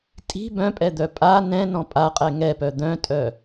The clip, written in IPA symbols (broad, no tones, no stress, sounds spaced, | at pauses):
tʼ i̤ b œ̃ pʼ ɛ d̪ œ pʼ a n ɛ̃ n ɔ̃ pʼ a qʼ ɛ ŋ ɛ p œ d̪ œ̃ tʼ œ